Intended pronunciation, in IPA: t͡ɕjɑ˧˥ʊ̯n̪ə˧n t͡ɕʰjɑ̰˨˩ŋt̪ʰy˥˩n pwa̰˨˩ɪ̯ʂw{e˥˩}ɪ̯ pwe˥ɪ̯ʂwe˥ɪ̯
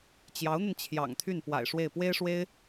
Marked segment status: correct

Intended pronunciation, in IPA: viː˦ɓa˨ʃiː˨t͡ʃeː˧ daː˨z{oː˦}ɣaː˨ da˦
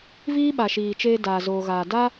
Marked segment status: incorrect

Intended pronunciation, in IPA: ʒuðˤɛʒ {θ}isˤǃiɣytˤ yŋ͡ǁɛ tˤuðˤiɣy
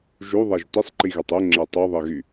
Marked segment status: incorrect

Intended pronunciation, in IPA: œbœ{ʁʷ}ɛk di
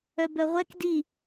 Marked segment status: correct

